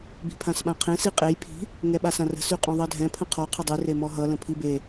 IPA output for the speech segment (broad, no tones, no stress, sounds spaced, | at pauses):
b i̤ pʰ ã s ɓ ã qʰ ẽ s i qʼ e j pʰ i̤ | ŋ ɛ ɓ a s ã r ə̤ s y qʼ ɔ̃ ðˤ ɜ dʱ ɛ̃ pʰ ə̃ qʰ ɔ qʰ ʌ dˤ y r e m ɔ ɦ ʌ l ə̃ pʰ i b e